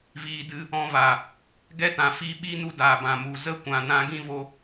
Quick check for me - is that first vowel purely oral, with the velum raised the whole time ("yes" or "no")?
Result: yes